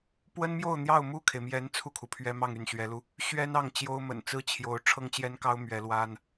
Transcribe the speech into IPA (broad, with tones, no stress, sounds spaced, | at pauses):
p w ə˥ n m j o˥˧ ʊ̯ n̪ j ɑ˥˧ ʊ̯ m u˥˩ kʰ e˩ ɪ̯ m j ɛ˧˥ n t͡sʰ u˥˩ kʰ u˩ pʰ ɥ ɛ˥ m ɑ˥˧ ŋ y˥˩ n ɕ ɥ ɛ˧˥ l u˧ | ɕ ɥ ɛ˥ n ɑ˥˩ ŋ t͡ɕ j o˥ ʊ̯ m ə̰˨˩ n t͡s ɹ̩˥ t͡ɕʰ j o˧˥ ʊ̯ ʈ͡ʂʰ ɤ˥ ŋ t͡ɕ j ɛ˥ n k ɑ˥ ʊ̯ m ɥ ɛ˧˥ l w a˥ n